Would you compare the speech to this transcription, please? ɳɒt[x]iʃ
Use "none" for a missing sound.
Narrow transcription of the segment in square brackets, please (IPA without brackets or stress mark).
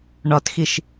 x